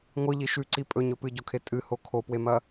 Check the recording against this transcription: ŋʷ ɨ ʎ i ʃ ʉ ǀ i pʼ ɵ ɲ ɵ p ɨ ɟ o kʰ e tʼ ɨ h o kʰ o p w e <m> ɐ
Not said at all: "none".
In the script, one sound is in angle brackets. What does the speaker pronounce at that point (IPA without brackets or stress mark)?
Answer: m